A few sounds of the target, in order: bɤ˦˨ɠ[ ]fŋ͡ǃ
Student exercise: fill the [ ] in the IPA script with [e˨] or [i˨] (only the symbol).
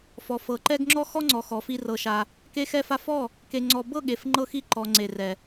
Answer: e˨